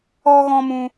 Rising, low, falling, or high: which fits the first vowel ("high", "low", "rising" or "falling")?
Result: high